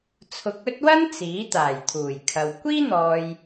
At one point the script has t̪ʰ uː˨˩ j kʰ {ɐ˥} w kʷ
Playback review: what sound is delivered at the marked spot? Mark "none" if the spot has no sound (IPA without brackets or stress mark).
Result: ɐ˨